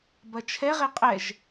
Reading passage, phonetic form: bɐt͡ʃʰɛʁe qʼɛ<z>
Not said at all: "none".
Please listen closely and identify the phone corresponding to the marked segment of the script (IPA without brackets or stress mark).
ʒ